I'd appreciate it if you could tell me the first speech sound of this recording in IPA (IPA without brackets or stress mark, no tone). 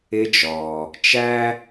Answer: ɪ